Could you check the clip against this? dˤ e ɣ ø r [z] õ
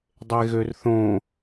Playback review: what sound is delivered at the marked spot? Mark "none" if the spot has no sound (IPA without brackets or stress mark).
θ